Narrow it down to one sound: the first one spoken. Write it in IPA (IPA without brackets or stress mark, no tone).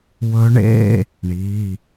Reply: w